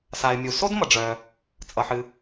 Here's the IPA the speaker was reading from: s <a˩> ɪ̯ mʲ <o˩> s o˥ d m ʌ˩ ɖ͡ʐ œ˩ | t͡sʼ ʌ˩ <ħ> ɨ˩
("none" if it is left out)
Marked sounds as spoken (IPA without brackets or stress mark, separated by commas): a˩, u˩, ħ